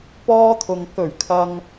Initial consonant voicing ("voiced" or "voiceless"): voiceless